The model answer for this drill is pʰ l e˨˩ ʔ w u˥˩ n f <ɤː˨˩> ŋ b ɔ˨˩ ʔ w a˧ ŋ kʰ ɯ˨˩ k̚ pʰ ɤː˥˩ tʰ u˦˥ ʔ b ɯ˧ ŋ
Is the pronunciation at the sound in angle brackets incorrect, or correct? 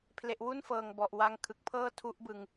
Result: correct